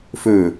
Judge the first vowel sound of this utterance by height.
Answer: mid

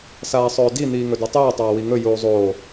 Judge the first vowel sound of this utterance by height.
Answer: low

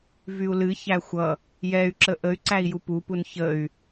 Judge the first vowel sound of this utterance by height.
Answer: high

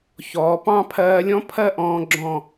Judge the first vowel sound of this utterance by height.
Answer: mid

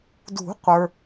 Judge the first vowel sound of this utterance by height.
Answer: high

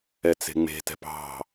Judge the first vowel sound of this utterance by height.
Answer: mid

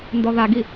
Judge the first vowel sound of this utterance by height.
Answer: mid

